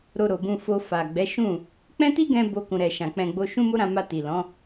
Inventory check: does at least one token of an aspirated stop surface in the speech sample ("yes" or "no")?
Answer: no